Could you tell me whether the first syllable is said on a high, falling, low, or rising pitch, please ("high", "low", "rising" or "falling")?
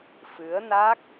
rising